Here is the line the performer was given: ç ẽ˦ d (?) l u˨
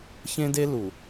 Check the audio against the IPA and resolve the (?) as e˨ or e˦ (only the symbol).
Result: e˦